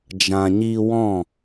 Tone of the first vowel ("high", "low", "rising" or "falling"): low